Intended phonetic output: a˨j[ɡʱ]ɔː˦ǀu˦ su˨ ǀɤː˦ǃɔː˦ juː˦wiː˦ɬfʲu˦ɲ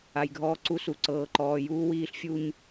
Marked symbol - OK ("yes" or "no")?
yes